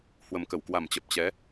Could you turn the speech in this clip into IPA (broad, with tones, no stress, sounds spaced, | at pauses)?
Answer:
h w ə˨˩ m k ə˧˩ w k w a˨˩ m t͡ɕ ə˨˩ p̚ t͡ɕ ɛ˨˦